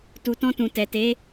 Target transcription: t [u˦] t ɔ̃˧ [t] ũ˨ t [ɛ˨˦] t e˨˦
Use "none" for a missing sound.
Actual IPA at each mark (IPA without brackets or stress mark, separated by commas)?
u˨, t, ɛ˨